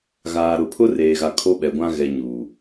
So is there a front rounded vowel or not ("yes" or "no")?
no